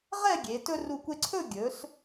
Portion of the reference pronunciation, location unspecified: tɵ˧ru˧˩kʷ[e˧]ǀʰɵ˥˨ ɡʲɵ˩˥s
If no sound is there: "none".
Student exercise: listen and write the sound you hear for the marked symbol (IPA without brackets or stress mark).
e˧